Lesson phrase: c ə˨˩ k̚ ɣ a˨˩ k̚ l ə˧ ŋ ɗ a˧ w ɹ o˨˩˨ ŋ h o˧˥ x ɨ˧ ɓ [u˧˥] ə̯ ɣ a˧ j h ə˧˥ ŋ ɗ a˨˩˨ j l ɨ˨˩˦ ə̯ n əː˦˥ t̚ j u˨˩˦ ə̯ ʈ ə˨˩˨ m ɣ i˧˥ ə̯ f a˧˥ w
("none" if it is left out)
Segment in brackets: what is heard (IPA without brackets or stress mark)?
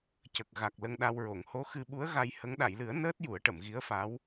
u˧˥